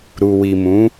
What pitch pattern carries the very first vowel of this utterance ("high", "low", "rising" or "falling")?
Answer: low